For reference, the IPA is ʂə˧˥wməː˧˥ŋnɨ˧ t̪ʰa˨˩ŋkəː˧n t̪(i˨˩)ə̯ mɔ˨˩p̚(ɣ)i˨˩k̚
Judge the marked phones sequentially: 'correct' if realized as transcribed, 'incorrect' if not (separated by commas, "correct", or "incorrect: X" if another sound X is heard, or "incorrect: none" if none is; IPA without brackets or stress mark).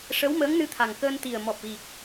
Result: correct, correct